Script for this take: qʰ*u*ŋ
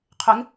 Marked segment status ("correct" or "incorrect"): incorrect